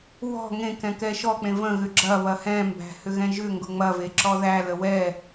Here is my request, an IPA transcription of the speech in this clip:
w ɔ̤ ŋ ẽ k ɛ̃ k ɛ ʃ ɔ k͡p ẽ v ə̃ ɣ ʏ ɡ͡ǁ ɐ β ɐ h ɛ̃ m b æ̤ h ʏ ɣ ɛ̃ ʒ ʏ ŋ ɡ ʊ ŋ͡m ɐ v e ǁ ɔ ð æ l ə w ɛ

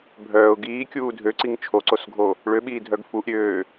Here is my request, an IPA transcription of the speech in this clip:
bʱ œː ʊ̯ ɡ iː kʲ uː dʱ ø ǀ i ŋ t͡ʃʰ o ǀ o s ɡʱ o | ɭ ø ɓ iː dʱ œ ɡ f u ʔ ɾʲ øː

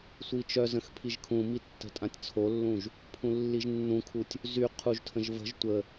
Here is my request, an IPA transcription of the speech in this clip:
sʷ i t͡ʃ œ z ə̃ x pʰ i ʒ kʰ ũ m i tː ə̤ tʼ ã tʲ t͡sʰ o lː ũ ʒ | pʰ ũ lː i ʒ nː ũ kʰ u tʲ | z y qʰ u ʒ tʰ ə̃ ʒ v ə̤ ʒ tʷ ə

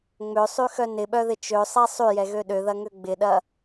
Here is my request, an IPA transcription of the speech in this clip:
ŋ͡m ø sˤ y x œ n ɪ ɓ œ ð ɪ t͡ʃ ø sˤ ɛ sˤ y j ɛ ɣ ø ɗ ø ð ɐ ŋ ø ɡ͡b ɪ ɗ ɐ

